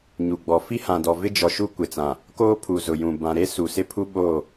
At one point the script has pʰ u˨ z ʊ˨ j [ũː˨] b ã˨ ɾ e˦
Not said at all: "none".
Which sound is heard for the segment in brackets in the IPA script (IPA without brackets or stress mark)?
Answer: ũ˨